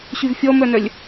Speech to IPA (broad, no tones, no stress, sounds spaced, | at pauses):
ɕ y v fʲ ɔ m œ n œ lʲ